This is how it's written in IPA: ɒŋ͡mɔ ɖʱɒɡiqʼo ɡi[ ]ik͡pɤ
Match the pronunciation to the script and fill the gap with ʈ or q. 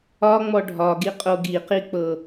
q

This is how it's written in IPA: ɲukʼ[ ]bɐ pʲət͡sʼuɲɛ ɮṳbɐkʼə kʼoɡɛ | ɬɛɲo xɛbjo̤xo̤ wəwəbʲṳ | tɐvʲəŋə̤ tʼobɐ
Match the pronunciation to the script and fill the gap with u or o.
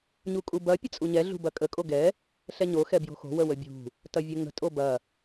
u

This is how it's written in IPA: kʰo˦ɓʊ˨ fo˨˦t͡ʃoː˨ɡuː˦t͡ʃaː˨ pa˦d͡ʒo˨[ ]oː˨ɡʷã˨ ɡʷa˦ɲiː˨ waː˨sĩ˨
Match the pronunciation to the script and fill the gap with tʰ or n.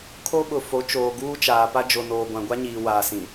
n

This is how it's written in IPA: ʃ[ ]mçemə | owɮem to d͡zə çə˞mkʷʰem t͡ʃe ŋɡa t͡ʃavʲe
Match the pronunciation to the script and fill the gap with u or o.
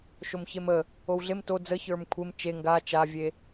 o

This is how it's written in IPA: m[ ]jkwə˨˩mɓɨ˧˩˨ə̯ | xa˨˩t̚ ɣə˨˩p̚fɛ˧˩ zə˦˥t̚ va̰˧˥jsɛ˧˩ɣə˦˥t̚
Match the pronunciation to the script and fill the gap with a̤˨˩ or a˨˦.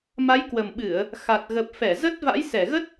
a˨˦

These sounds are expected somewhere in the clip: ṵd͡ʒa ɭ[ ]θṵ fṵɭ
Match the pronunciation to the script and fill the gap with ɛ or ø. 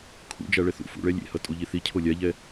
ɛ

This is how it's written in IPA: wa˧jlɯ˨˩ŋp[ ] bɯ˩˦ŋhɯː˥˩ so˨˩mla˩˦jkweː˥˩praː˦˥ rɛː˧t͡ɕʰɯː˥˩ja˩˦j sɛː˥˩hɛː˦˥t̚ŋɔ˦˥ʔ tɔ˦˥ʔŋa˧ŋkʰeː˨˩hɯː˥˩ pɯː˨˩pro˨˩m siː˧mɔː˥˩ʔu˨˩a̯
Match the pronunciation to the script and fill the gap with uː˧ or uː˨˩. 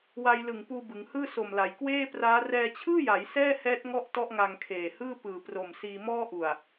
uː˧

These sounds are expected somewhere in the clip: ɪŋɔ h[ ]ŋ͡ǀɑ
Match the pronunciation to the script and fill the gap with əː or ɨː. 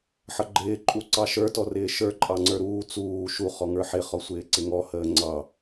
əː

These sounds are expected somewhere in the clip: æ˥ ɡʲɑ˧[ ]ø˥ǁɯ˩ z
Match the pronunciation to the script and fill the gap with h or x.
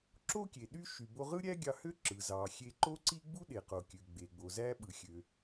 h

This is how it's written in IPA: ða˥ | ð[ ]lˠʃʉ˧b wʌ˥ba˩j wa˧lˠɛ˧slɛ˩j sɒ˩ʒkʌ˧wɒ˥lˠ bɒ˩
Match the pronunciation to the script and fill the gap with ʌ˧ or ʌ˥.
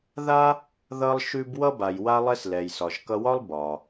ʌ˧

